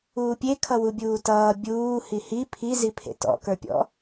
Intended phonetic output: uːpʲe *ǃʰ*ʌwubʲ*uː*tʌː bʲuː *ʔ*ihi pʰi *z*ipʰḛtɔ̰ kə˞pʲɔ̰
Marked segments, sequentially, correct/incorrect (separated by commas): incorrect, correct, incorrect, correct